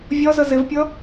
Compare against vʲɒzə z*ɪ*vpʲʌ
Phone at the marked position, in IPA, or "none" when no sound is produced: ɪ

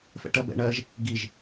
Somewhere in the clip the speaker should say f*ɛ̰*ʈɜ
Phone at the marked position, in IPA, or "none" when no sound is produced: ɛ̰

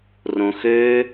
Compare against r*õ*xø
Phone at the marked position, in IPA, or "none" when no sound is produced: õ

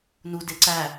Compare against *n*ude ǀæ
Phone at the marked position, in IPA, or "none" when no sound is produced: n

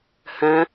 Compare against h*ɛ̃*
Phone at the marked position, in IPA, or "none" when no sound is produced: ɛ̃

